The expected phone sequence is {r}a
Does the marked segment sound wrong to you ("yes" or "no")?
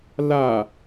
yes